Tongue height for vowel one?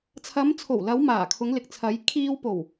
low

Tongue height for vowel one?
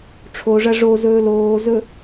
mid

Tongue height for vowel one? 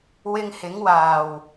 high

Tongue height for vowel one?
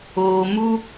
mid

